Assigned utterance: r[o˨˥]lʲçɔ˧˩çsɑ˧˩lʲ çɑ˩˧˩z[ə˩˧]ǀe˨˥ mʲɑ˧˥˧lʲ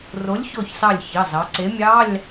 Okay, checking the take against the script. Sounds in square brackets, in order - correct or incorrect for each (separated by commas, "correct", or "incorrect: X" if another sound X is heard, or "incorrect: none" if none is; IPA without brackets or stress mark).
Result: correct, incorrect: ɑ˩˧